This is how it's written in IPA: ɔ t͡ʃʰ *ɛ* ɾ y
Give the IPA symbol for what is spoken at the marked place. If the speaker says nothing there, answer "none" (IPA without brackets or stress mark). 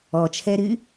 ɛ